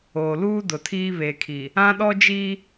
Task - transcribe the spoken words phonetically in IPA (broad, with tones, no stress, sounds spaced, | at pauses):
oː˨ l uː˦ d ʊ˨ tʰ iː˦ β e˨ kʰ i˨ | ã˦ ɗ ɔ˦ d͡ʒ iː˦